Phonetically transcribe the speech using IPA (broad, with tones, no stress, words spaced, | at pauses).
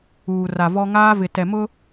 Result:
uː˨ra˨ vɔ˦ ŋaː˦vɪ˨tɛ˨mʊ˦